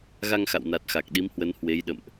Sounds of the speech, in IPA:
ɣ a˧ ŋ x a̰˧˨ w n a˨˩ t̚ x a˨˩ k̚ ɗ i˨˦ m h w ə˨˦ n h w e˨˦ j ɗ ə̰˧˨ m ʔ

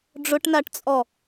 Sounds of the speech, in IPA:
ɖ͡ʐ ʊ ʈ n a ʈ t͡sʼ ɔ

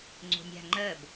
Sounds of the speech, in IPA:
ŋ͡ǀ o̤ nʲ a̤ ŋ͡ǃ ɜ b

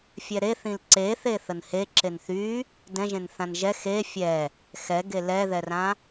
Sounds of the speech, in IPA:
fʲ ɛ ɾ e θ ĩ l ǀ e θ e θ ə n h e ǁ e n θ y | d ɛ̃ ʒ ẽ n θ ã n ʒ ɛ x e fʲ ɛ | x ɛ ɡ e l ɛ ð ɛ r ã

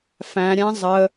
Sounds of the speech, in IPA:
f æ̃ ɾʲ æ̃ zˤ ə

